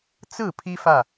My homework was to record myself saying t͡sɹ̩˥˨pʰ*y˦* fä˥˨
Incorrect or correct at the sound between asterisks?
incorrect: i˦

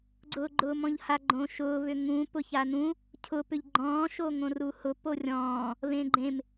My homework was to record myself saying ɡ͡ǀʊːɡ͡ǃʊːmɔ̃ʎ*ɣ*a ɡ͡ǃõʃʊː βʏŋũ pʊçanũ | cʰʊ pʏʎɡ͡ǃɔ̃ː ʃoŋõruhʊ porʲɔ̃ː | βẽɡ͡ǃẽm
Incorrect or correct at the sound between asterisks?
incorrect: h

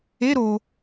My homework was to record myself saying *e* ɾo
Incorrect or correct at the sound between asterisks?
correct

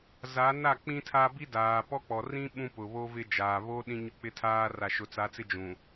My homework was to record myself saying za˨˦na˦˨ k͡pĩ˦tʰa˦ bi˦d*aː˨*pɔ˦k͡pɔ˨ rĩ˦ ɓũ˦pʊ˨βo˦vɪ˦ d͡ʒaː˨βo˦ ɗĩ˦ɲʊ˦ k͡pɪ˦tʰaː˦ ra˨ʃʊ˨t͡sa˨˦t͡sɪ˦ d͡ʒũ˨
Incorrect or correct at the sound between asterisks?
correct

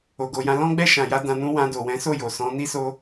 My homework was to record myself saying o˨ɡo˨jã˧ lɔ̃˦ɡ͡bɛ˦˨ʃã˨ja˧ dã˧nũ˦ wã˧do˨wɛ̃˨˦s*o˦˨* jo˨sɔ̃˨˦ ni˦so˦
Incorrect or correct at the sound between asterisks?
correct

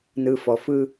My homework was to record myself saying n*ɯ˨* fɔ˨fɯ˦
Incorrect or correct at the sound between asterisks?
correct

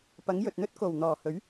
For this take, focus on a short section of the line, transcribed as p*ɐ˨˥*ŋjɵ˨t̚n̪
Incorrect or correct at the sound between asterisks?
correct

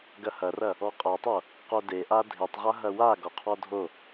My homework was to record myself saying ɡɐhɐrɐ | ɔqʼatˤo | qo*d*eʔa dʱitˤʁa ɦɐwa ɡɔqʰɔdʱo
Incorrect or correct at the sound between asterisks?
correct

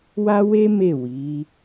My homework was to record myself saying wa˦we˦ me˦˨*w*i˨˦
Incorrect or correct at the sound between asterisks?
correct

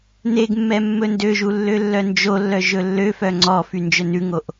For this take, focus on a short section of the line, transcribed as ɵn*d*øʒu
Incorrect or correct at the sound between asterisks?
correct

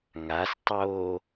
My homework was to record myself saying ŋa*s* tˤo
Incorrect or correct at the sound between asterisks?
correct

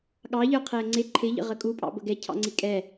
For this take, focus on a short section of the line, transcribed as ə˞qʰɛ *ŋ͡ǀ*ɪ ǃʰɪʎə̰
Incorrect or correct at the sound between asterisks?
correct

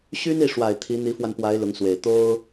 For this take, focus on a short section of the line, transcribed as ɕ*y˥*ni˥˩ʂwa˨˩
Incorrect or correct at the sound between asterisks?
correct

